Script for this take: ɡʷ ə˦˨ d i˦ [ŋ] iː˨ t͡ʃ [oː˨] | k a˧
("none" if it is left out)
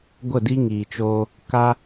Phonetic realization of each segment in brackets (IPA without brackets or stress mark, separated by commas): ŋ, oː˧